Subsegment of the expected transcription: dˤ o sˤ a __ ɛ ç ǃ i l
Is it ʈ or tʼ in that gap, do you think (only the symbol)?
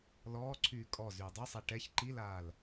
ʈ